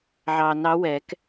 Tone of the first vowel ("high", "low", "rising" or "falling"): low